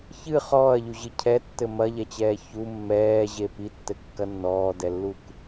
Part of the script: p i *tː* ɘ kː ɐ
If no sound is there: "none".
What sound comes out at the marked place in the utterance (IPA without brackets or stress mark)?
tː